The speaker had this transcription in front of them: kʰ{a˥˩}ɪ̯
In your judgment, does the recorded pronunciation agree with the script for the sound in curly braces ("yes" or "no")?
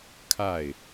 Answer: yes